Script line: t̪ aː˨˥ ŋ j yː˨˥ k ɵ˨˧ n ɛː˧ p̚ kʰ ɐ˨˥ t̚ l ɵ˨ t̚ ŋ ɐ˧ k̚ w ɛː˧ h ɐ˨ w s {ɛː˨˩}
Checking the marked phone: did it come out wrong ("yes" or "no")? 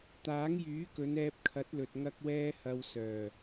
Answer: yes